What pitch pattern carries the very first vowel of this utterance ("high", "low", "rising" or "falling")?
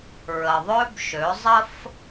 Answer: low